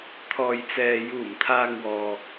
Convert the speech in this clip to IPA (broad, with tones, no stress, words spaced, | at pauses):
t̪ʰɔː˨jt͡sɛː˨ juː˨˩mt̪ʰaː˨ŋ wɔː˨